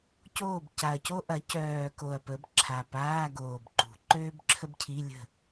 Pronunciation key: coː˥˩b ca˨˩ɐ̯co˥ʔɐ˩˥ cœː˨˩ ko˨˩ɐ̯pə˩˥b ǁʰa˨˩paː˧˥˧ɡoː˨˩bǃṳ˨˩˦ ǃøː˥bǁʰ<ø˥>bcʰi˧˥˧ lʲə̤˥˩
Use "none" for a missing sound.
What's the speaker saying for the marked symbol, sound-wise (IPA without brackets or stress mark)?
ə˥